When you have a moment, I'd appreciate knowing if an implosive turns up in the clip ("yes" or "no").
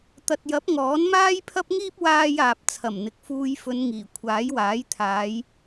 no